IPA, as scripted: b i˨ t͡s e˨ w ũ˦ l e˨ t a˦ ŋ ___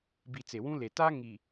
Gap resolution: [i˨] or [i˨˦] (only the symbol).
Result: i˨